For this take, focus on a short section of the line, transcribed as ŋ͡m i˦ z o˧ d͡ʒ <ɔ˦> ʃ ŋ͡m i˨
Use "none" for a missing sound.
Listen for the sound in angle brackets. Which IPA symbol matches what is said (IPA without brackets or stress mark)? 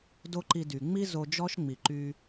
ɔ˦